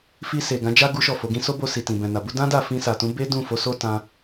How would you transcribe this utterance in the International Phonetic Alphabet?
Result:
f i˧ s e˨ ɡ ã˨˦ d͡ʒ a˦ ɡ u˦ ʃ ɔ˦˨ f o˨˦ ɡ ĩ˦ s o˦ b o˧ s i˨ t ĩ˨ b ɛ̃˨ n a˨ b u˨˦ d ã˦ d a˦˨ f ĩ˧ s a˨ t ũ˨˦ b e˦ d ũ˦˨ f o˨˦ s o˦ t ã˦

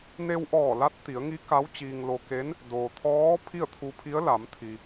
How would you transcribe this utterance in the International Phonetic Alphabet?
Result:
n e˧ w ʔ ɔː˧˩ l a˧˥ t̚ t̪ i˩˧ ə̯ ŋ i˧˥ k a˧˥ w t͡ɕ iː˧ ŋ l o˧ k e˧˥ n | d oː˩ t̪ʰ ɔː˧˥ pʰ i˥˨ ə̯ t̪ʰ u˧ pʰ i˧˥ ə̯ l a˩˧ m t̪ʰ i˩

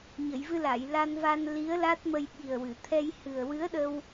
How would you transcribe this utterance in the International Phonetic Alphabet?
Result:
ɲ ə˨˩˨ j v ɨ˧ l a˨˩˨ j l a˧ n v a˧ n l i˧˥ ə̯ l a˦˥ t̚ m ə˧ j ɓ i˨˩ ə̯ w ɨ˨˩˨ t̪ʰ ɛ˧ j h ɨ˨˩ ə̯ w ɨ˧˥ ə̯ ɗ ə˧ w

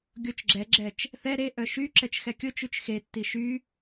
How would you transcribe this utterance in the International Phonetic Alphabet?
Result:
ɡʲ o t͡ʃ ɡ͡ǁ ɛ ɡ͡ǁ ɛ t͡ʃ | θ ɛ ɾ e ʔ œ ʃ y ǁ ɛ t͡ʃ x ɛ kʲ ʊ t͡ʃ y t͡ʃ x e tː i ʃ y

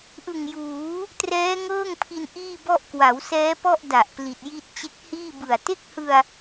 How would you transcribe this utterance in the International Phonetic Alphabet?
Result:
ʔ ɯ˨˩ ŋ j uː˩˦ | t r ɛː˦˥ ŋ ɤː˥˩ ŋ pʰ i˧ n ʔ iː˥˩ b ɔ˥˩ ʔ k w a˩˦ w s ɛː˦˥ p ɔ˥˩ ʔ d a˨˩ ʔ p l i˨˩ t̚ j i˥˩ t̚ t͡ɕ e˦˥ k̚ h iː˥˩ b ɯ˨˩ a̯ t e˥˩ k̚ h ɯ˧ a̯

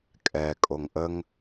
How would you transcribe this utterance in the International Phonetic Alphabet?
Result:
kʼ ɛ kʼ o ŋ ʔ ə ŋ

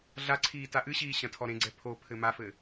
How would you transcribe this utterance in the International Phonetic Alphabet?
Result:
ɮ a ǀʰ iː t a ʔ ɨ ɕ iː ɕ ɐ̃ tʰ ɔ ɾ ẽ ɡ͡ǀ ɛ pʰ o pʰ ɘ m a f ɘː

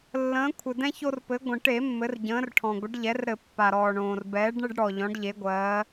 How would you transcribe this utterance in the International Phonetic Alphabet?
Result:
lː ə̃ː˩˧ kʷʰ ɘ˩ d ɛ̃˧ ç o˧ r p ɘ˩˧ ɡʷ ə̃˩ ʈ e˧˩˧ mː ɘ˩˧ r ɟ ə̃ː˩˧ r ʈʰ ɔ̃˩ ɡʷ ə˩˧ ɖ ʎ ɛ˩˧ r ɾ ɘ˧˩˧ pː a˩ ɾ ɔː˩ ɳ õː˩ r b ɛː˩˧ ɖ ɳ ɘ˧ ɖ ɽ ɔ˩ ʎ ɔ̃˩˧ ɖ ʎ e˩˧ ɡʷ ɜː˩˧

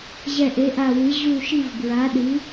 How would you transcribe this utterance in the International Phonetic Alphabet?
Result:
ʑ ɛ˦˨ ʔ e˨˥ ʔ a˦˨ w ɨ˨˥ ʑ u˦˨ ʃ i˦˨ v b ɹ a˨˥ ɗ ɨ˨˥

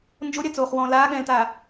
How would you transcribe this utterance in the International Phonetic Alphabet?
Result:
n d͡ʒ o ɾʲ a t͡s oː χ w ɔ̃ː l aː ɠ ɛ̃ː l t aː

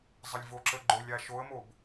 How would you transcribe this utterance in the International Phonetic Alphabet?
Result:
zˤ ə lʲ v o ǁ ə ɡ͡ǃ o lʲ a ʃ o ə̯ m o b

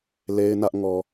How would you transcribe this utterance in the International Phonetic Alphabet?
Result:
l e˦ ɪ̯ n ä˦ ʔ ŋ ɔ˨

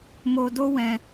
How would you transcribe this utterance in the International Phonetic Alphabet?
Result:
m o˧ d o˦ w ɛ̃˧

